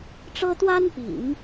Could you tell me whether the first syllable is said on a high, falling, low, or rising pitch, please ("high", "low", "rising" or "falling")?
high